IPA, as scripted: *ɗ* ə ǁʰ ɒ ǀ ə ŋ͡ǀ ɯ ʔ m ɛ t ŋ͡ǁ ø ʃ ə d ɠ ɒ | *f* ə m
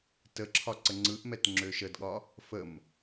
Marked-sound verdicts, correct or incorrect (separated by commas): incorrect, correct